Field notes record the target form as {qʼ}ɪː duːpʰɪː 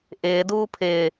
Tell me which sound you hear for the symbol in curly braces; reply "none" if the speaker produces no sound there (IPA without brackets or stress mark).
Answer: ʔ